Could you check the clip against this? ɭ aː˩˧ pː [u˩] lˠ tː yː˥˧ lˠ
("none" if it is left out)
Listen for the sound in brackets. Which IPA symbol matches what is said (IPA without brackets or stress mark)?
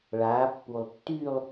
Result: u˩